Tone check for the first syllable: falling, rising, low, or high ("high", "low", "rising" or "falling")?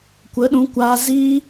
rising